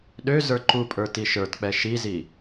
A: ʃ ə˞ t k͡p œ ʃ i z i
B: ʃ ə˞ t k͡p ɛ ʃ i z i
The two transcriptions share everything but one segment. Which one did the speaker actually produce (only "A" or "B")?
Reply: B